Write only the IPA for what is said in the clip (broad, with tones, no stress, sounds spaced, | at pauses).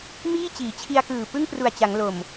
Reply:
m iː˥˩ t͡ɕ iː˩˦ t͡ɕʰ i˧ a̯ k ɯː˨˩ p ɯ˥˩ ŋ p r u˨˩ a̯ t͡ɕ a˩˦ ŋ l o˨˩ m